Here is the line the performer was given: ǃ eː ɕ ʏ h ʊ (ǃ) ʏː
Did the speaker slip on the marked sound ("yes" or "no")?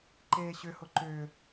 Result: no